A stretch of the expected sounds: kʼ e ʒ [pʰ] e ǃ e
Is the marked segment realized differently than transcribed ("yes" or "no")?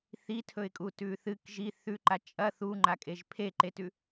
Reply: no